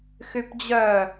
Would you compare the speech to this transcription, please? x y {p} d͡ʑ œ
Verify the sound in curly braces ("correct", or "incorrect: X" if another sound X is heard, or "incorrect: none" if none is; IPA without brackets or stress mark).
correct